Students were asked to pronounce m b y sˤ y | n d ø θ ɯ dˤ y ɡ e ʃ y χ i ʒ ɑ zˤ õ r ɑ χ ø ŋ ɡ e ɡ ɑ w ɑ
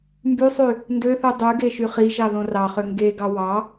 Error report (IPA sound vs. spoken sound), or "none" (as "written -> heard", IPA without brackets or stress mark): zˤ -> ð